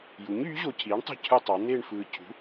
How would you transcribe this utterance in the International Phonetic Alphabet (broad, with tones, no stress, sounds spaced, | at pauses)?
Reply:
j u˩˥ ɲ yː˩˥ ʑ o˨ cʰ iː˩˥ ɳ tˤ ṳ˥˩ cʰ ɯ˥˧ tˤ ɑ˩˥ n̪ eː˥˧ ɳ f ɯː˨ cʰ ṳ˩˥